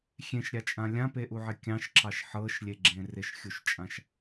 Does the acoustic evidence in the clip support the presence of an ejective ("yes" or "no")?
yes